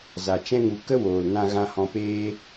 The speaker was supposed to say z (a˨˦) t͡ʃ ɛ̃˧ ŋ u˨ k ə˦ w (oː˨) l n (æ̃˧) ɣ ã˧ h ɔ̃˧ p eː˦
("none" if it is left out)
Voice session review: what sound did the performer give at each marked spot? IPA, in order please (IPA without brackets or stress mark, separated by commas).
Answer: a˨, oː˨, ã˧